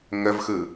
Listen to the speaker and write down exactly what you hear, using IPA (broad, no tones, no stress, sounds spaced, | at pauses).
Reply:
ŋ ə v x ɯ